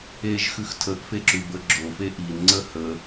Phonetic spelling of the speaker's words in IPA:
e ʒ x ʉ x tʰ ə ʔ f e ǁ ʉ b ə ɡ͡ǁ o f e ʔ i n ŋ͡ǀ ə h ə

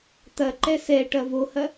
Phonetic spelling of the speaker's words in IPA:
t̪ ɐ ǃ ɛ s ɛ ʈ ɐ v o h ɐ

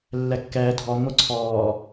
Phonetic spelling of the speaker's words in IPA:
lː ɛ kː ɛː dʱ ɔ ŋʷ ə˞ ǀʰ ɔː

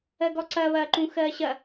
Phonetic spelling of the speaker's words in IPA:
ɜ ɡ ɔ ǀ ɐː β ɐː ǃ ũ x ɜː ɕ ɐ

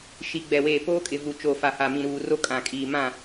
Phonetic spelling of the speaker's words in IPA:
ʃ i˨ ɡ͡b ɛ˨ w eː˨ p oː˦ kʼ ɪ˨ v u˨ t͡ʃ o˨ f a˨ h a˨ m ĩ˨ ɾ uː˨ r o˦ kʼ ã˨ kʼ iː˨ m ã˦˨

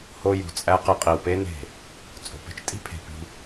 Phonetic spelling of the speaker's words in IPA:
h o˦ j ṳ˨ t͡sʼ æ˦ q e˦ qʼ i˨ w p e˦ n e̤˦˨ | t͡sʼ o̤˨ p e̤˦ t͡ʃ tʼ i̤˦ pʰ e̤˨ p i̤˦

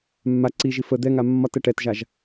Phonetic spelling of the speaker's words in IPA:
mː a ǀ i ʒ i f ə d̪ ɛ ŋ a mː ɒ t ɛ ʈ ɛ t ʒ a ʒ

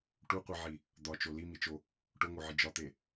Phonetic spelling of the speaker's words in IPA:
ʈ u qʷ i ʕ i | d̪ ɒ t͡ʃ o l i m i t͡ʃ o | ʈ o ŋ o ʕ i d͡ʒ ɒ t̪ e

